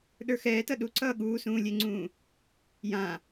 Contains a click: yes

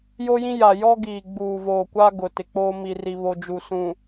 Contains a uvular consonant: no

